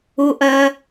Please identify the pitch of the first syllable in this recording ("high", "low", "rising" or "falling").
high